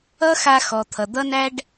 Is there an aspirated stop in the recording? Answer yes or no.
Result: yes